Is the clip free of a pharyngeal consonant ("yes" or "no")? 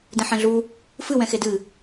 no